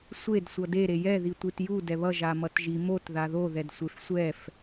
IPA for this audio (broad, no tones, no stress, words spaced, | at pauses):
sʷed sʷʌde ɾejɛ ðitʷitju dɛβʌ ʒamʌtʒi mot ðaðo ðɛdsʷefsʷɛf